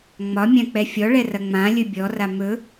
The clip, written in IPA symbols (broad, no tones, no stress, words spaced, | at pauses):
ŋ͡mɒ mʲãk͡pɛfʲɔɭɛ rɐŋ͡mãlʲɵ bʲɔra mɵ